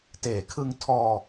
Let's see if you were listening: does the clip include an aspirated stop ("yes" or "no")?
yes